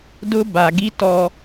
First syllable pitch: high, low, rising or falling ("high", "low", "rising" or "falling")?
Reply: high